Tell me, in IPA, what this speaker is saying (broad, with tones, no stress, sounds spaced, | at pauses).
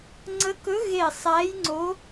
ŋ͡ǀ ə˧˥ k ɵ˧˥ ɣ e˦˨ sˤ æ˧˥ j ŋ͡ǀ o˧˥